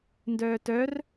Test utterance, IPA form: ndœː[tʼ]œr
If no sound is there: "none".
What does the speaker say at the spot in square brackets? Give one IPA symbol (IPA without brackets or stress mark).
t